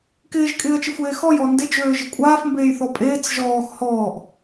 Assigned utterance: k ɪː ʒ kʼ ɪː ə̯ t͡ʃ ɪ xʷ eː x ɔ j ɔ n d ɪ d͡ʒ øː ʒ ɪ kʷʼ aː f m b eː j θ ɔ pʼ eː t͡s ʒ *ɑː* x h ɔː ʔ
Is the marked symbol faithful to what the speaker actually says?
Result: no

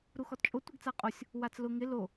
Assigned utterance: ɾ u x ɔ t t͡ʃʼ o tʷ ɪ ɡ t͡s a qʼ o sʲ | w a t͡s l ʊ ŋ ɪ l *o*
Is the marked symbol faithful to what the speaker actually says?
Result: yes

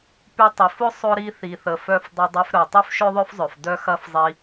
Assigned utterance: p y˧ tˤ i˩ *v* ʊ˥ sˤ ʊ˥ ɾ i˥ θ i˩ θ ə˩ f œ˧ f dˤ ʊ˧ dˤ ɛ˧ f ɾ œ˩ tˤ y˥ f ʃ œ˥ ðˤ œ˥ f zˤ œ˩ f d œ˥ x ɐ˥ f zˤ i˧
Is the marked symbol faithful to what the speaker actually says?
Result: no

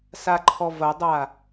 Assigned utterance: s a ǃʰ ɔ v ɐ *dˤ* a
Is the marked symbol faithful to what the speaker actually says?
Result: yes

